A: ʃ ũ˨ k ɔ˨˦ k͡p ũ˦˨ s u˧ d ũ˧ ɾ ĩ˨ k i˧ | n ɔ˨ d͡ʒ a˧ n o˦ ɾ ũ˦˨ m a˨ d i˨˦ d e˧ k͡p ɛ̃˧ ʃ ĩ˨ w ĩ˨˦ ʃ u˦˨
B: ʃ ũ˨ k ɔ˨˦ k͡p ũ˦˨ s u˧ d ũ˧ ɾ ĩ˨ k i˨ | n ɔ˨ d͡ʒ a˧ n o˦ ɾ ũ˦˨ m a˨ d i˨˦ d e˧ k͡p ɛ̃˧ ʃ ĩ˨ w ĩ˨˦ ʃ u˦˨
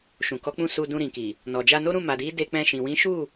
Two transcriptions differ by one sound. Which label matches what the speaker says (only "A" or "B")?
B